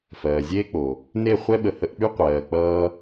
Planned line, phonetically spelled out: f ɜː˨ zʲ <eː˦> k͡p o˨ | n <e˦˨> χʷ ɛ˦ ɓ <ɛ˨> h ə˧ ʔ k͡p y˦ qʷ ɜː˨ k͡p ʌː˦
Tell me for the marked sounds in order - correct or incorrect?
correct, correct, incorrect: ə˨

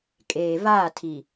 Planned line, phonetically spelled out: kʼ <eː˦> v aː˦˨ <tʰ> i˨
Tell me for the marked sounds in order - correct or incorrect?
incorrect: eː˨, correct

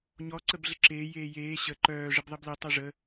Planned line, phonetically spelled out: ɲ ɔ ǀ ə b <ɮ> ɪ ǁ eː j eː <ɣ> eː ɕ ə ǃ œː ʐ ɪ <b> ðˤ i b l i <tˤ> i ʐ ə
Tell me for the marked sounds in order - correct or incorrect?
correct, incorrect: j, correct, correct

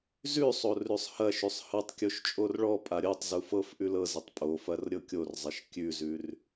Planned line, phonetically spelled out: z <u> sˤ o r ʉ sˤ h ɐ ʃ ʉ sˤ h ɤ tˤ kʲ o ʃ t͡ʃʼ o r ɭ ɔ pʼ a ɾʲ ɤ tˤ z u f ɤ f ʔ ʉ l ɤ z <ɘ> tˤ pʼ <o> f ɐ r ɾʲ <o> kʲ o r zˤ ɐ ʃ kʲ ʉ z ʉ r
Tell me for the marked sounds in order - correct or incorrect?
incorrect: ʉ, correct, correct, incorrect: ɤ

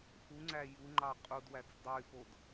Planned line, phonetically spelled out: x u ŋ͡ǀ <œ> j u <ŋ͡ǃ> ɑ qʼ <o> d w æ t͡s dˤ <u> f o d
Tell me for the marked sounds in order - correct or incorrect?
incorrect: æ, correct, incorrect: u, incorrect: y

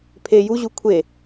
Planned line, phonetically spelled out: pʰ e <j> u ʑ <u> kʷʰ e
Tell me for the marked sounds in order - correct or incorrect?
correct, correct

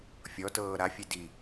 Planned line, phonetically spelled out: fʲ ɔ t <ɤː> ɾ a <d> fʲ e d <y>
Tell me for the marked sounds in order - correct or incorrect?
correct, incorrect: none, incorrect: i

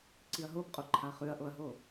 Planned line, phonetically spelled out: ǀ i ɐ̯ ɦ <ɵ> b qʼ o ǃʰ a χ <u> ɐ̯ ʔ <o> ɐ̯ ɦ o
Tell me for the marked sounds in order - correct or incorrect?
incorrect: o, incorrect: ʉ, correct

